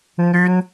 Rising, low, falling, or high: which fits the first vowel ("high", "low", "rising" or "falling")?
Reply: high